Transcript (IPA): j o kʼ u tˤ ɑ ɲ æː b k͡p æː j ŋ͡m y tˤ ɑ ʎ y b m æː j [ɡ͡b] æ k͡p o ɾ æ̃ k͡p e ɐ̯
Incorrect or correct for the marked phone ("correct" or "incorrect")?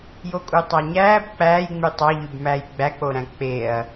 correct